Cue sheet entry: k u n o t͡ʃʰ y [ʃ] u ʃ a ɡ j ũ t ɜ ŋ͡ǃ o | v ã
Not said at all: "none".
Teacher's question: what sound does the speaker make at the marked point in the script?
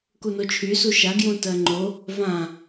s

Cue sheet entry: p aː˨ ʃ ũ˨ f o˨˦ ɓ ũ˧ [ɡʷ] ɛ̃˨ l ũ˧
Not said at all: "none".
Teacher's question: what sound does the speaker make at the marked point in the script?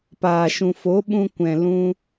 kʷ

